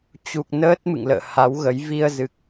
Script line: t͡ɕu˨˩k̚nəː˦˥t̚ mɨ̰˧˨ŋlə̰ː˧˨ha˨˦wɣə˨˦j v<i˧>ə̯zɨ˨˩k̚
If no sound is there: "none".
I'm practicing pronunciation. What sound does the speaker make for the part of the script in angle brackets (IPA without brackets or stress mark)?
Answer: i˧